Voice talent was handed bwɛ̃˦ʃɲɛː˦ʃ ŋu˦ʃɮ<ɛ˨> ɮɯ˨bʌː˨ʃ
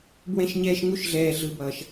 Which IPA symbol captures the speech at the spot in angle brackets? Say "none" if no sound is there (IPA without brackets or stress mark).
ɛː˨